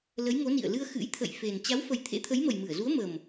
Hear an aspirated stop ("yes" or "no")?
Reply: yes